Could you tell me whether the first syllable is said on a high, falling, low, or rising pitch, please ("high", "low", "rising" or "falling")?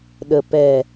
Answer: low